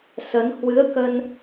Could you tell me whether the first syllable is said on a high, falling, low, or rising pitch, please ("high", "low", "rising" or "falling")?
rising